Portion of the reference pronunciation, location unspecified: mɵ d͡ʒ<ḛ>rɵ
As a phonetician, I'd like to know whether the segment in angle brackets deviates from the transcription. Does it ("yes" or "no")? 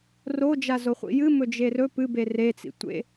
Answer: yes